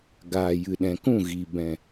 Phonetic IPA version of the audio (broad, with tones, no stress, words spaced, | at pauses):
ɡaː˨ jɨ˨ɗɛ̃˨kũ˦˨ ɣi˨bɛ̃˨